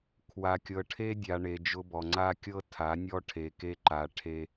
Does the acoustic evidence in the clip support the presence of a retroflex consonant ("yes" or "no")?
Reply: yes